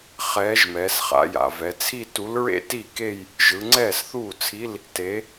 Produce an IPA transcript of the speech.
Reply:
χ ɛː˨˥ ʒ m ɛː˩˧ s χ a̰˩˧ j a̰˩ v ɛ˩˧ t͡sʰ i˥˧ t u˨˥ l ɹ ḛ˥˧ t i˥˩ k e˥˧ j | ʒ ɯ˩˧ ŋ͡ǀ ɛː˥˩ s θ uː˥˩ t͡sʰ i˧˥˧ l | t e˨˥

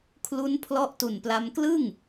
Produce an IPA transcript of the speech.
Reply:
kʰ l u˦˥ n pʰ l ɔ˦˥ ʔ t u˨˩ n p l a˧ m k l ɯ˥˩ ŋ

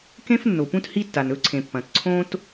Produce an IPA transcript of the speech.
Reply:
k ẽ˥ f nː o˩ p ũ˥ t h i˥ tː a˩ n ɵ˥ ǀʰ ẽ˩ pː ɐ̃˩ t ǀʰ õ˥ t

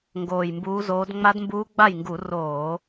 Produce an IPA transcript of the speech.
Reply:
ŋ ɡ oː˨˩ j m b uː˨˦ z oː˨˦ d ŋ͡m a˦˥ d m b uː˦˥ ɡ͡b a˥˩ j ŋ ɡ u˧˩˧ r oː˧˩˧

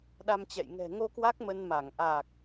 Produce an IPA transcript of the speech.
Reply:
ɗ a˧ m t͡ɕ ɛ̰˧˨ j ŋ ɛ̤˨˩ ŋ o˧ k w a˦˥ k̚ m ə˧ n m a˧˩ ŋ ʔ aː˨˩ k̚

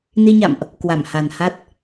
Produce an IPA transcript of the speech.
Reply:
n i˧ ɲ a̰˧˨ m ʔ | k w a˧˩ m h a˨˩ n h a˦˥ t̚

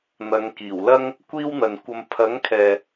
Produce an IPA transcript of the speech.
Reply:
n̪ ɐ˨˧ ŋ k iː˨˩ w l ɐ˥ ŋ | kʷ iː˥ w n̪ ɐ˨ n kʷ ɐ˧ m pʰ ɐ˨˥ ŋ kʰ ɛː˨

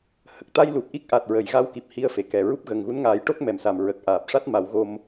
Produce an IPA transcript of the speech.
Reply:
h ə˨˩ k̚ t̪ a˧ j l u˨˩ p̚ ʔ i˦˥ k̚ ʔ a˨˩ t̚ ɹ ə˨˩˨ j ɣ a˧ w k i˨˩ p̚ h i˧ ə̯ f e˨˩ k ɛ˨˩ ɹ u˦˥ p̚ ɣ ə˨˩ ŋ ɣ u˧˥ n ŋ aː˨˩˦ j ʈ o˦˥ k̚ m ɛ˨˩ m s a˨˩ m ɹ ə˨˩ k̚ ʔ aː˨˩ p̚ ʂ a˦˥ t̚ m a˨˩˦ w ɣ o˧ m

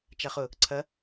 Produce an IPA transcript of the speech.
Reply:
t͡ʃ a χ ʊ | ǀʰ ɐ

